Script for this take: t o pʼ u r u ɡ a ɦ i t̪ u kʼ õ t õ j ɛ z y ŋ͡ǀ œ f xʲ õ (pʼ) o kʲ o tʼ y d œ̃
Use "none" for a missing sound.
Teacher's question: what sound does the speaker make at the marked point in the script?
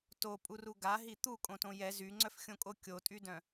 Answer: kʼ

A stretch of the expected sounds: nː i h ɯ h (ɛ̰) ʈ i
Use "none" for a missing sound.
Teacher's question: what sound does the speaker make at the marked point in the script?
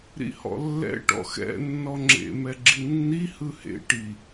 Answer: ḛ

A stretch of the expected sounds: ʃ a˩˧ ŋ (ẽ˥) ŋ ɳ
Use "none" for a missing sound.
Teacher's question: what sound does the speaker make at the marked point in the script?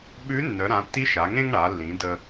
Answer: ẽ˥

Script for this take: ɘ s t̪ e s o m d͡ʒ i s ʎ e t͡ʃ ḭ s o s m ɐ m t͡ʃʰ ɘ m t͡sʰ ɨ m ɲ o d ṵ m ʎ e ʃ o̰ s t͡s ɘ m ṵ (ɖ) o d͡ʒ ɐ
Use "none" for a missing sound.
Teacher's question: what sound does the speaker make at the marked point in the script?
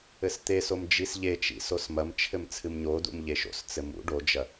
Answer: ɖ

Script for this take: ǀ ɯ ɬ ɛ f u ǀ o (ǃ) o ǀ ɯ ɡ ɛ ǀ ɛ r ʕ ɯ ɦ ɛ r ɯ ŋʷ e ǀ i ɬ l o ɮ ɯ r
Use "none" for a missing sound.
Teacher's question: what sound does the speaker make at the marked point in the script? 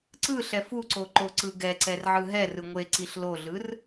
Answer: ǃ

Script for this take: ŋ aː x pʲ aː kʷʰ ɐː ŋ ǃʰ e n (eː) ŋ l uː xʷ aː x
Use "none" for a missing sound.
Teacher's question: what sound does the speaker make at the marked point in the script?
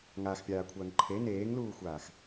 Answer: eː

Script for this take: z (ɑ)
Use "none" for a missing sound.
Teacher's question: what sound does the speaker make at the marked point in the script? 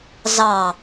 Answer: ɑ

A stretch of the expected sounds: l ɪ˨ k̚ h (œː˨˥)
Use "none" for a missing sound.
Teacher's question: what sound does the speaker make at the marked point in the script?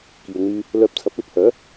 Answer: œː˨˥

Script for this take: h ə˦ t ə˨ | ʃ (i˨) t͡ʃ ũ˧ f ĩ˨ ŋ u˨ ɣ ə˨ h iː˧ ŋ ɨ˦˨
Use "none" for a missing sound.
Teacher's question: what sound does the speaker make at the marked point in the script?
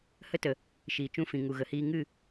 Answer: iː˨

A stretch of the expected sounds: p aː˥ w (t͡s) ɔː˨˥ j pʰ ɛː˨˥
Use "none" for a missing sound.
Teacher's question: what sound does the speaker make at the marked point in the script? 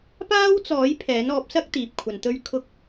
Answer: t͡s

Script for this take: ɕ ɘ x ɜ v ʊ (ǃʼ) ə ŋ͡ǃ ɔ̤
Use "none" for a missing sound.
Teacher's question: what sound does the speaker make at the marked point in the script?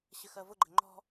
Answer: ɡ͡ǃ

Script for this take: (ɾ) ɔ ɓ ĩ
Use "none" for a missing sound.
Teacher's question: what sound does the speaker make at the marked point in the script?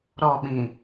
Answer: ɾ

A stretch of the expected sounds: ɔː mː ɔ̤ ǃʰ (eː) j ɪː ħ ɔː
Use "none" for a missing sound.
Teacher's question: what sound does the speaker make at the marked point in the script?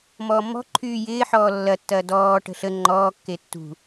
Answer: yː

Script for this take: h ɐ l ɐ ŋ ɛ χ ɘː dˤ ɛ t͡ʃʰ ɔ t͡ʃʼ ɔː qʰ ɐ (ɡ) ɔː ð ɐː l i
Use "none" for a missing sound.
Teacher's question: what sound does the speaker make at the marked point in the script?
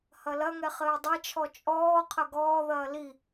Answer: ɡ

